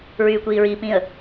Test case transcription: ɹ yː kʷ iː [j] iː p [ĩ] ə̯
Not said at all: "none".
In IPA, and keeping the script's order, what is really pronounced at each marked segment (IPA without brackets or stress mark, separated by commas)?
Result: ɹ, ĩ